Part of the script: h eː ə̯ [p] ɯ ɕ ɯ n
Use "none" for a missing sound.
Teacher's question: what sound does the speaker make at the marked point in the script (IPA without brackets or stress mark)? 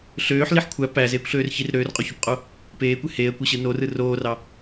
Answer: kʷ